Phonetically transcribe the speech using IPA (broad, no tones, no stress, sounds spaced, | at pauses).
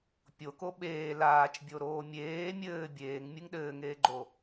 pʲ o k o ɓ eː l aː t͡ʃ bʲ o ɾ oː mʲ eː mʲ ɘː bʲ eː ŋ mʲ ɨ ŋ ɗ ɘː ŋ eː ɡ͡ǃ o